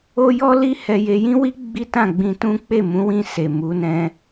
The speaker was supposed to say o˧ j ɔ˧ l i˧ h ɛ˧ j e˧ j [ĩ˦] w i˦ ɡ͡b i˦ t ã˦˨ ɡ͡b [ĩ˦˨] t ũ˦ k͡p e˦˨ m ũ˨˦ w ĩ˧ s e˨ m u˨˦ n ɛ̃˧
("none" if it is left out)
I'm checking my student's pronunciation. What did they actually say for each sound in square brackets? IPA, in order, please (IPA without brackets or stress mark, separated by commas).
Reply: ĩ˦, ĩ˧